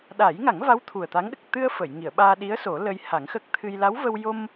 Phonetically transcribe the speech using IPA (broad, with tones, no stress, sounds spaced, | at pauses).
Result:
ɗ a˨˩˦ j ŋ a˨˩˦ ŋ v a˧˥ w t̪ʰ u˨˩ ə̯ t̪ a˧˥ ŋ ɗ ə˨˩ k̚ t̪ ɨ˧ ə̯ f ə˨˩˨ j ŋ i˨˩˨ ə̯ ɓ aː˧ ɗ i˧˥ ə̯ s o˨˩˦ l əː˧ j h a˨˩˦ ŋ x ə˦˥ k̚ t̪ʰ ɨ˧ j l a˧˥ w v ə˧ w j o˧ m